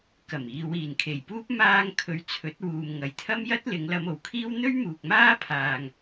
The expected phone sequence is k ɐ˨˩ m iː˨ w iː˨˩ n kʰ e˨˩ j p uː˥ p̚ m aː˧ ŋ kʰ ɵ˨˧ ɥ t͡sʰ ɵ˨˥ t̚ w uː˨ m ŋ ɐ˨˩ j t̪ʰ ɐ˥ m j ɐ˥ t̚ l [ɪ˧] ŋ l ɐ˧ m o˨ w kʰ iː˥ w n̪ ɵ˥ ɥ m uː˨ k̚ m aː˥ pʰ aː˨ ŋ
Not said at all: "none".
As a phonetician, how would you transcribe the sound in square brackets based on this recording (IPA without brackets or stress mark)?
ɪ˨˧